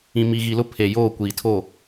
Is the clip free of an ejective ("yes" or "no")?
yes